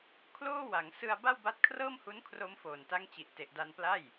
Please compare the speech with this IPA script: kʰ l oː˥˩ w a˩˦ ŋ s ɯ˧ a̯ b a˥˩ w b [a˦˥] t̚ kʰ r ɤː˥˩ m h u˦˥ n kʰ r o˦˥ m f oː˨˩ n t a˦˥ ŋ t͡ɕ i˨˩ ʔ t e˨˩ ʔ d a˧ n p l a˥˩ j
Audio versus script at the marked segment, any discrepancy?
no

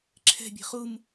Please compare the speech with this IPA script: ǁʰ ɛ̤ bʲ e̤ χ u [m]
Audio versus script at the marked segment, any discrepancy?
no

